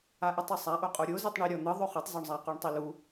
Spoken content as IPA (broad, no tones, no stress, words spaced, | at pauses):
aʔɯtˤɯsˤa ʔoqʼoɾʲo zitˤɳi ɾʲɔn̪ɯ ðˤoχɯtˤ zoɳzˤa quɳtˤilu